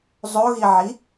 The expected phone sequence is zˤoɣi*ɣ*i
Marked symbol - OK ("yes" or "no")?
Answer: no